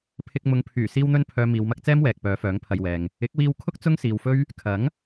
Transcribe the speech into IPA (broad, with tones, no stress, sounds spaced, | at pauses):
pʰ ɪ˧ k̚ m ʊ˨ ŋ pʰ yː˨˩ s iː˧ w n̪ ɵ˧ n pʰ œː˨ m iː˨ w m ɐ˥ k̚ t͡s ɛː˥ m w ɛː˨ k̚ p œː˨˧ f œː˨˥ ŋ pʰ ɐ˨ j w ɛː˨ ŋ | ɪ˨˥ k̚ w iː˧ w kʰ ʊ˥ k̚ t͡s ʊ˥ ŋ s iː˨ w f ɵ˥ ɥ | kʰ ɐ˨˥ ŋ